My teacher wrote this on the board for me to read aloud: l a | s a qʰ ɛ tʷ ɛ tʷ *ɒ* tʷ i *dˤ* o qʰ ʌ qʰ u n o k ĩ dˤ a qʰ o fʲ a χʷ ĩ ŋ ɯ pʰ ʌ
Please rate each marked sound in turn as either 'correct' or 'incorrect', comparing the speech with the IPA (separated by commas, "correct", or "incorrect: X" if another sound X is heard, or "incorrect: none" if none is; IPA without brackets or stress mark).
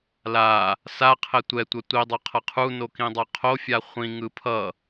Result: incorrect: ʌ, correct